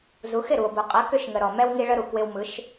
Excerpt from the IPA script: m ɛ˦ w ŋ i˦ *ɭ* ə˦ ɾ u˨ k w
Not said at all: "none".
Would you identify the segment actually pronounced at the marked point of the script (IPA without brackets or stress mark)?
ɭ